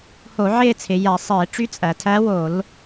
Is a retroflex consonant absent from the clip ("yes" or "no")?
no